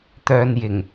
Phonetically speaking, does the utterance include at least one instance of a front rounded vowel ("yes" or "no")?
yes